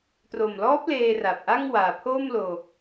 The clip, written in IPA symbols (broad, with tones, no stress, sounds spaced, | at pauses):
t r o˨˩ m l ɔː˦˥ p̚ l eː˧ r a˨˩ p̚ ʔ a˥˩ ŋ w aː˨˩ pʰ oː˥˩ m l oː˧